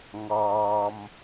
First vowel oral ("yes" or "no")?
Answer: yes